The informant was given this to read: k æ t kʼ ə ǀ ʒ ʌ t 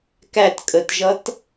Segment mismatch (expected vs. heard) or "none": ǀ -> t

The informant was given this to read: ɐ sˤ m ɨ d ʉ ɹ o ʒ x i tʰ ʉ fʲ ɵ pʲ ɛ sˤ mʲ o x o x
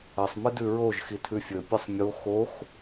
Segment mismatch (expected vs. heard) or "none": ɛ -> ɨ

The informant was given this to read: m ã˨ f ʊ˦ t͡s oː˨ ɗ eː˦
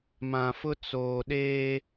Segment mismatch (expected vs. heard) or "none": none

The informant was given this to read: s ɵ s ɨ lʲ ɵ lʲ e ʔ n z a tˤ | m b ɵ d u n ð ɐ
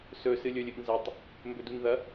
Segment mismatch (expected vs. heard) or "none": e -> ɨ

